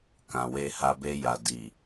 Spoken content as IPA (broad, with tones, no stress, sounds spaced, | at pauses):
k ã˨ w e˧ h a˧ b e˧ j a˨ d i˨